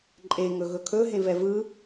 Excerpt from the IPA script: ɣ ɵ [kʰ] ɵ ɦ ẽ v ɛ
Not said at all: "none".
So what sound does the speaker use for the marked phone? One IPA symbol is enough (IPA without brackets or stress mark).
kʰ